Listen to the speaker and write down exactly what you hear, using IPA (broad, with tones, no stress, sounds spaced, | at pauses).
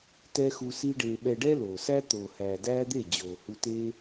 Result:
t ɛ˦ x u˧ s i˦ ɖ eː˧ ɓ ɛ˧ ɖ ɛ˦ l oː˨ s æ˦ t̪ oː˨ h æː˨ d æː˦ d̪ e˦˨ d͡ʑ oː˨ h u˧ t eː˦